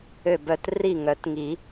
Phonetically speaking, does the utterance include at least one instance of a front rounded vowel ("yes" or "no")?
yes